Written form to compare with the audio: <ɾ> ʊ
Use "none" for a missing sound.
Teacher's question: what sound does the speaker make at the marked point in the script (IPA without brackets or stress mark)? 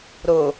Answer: ɾ